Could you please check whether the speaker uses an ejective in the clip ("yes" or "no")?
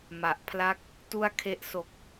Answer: no